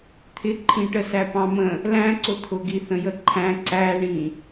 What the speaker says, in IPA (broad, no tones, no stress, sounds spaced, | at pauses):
t̪ʰ ɪ ǃʰ ĩ ʈ ə s æ p ɑ̃ m ə̃ | l æ̃ ǀ ʊ t̪ʰ ʊ ɡ i θ ə̃ j ə ǃʰ æ̃ ǀ æ ɳ ĩ